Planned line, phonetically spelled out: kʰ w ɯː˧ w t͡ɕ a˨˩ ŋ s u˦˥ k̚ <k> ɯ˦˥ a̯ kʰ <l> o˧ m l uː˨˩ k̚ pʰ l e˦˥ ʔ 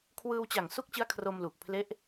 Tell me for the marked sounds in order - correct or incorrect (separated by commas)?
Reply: incorrect, incorrect